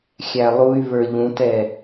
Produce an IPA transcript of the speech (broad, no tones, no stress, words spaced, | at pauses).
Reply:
xʲælˠuy̯βə˞ ʎũtɛ